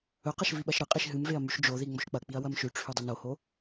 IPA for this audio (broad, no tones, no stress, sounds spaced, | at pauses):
ɵ q ɐ ʃ v i ɓ ɐ ʃ ɾ ɨ qʼ i ʃ ɦ ɨ m v e ɐ̯ m ʉ ʃ d͡ʒ o ð i ŋ͡m o ʃ k͡p ɐ k͡p i ɐ̯ w ɐ m ʃ ʉ ʈ͡ʂʰ ʉ dˤ ɵ n o h o